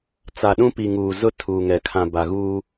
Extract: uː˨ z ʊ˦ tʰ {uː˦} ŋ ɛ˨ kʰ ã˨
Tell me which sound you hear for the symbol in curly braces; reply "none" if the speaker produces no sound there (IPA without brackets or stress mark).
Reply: uː˨